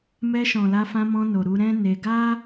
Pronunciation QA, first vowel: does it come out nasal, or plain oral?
oral